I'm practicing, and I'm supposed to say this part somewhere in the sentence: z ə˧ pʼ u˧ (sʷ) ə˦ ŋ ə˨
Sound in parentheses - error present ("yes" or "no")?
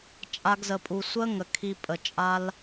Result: no